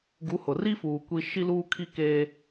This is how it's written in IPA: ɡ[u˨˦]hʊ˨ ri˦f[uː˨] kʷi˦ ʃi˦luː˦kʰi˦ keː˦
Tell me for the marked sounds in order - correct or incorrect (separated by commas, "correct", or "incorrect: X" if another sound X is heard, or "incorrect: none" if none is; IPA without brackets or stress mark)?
correct, correct